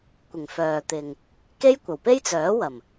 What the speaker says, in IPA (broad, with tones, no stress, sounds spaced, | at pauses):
kʷ ɪ˨˩ ŋ f œː˨ t̪ ɪ˨ ŋ | k e˥ j kʷ ɐ˨˩ w p e˥ j t͡s œː˨˥ w ɐ˨˩ m